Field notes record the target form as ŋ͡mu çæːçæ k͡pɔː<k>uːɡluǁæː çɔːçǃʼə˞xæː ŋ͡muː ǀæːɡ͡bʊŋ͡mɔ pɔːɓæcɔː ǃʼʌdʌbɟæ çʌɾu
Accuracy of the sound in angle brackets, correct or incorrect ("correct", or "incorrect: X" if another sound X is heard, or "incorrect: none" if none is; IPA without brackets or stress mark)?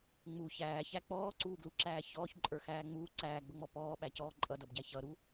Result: incorrect: ǀ